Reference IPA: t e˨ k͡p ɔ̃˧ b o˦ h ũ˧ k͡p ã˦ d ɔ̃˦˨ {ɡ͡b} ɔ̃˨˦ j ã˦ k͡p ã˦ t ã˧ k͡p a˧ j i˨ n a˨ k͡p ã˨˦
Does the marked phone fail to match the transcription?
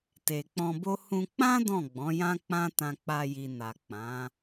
no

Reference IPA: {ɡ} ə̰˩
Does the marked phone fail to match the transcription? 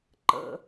yes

